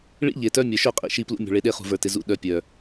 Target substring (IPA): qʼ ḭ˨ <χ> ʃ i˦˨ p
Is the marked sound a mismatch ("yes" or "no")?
yes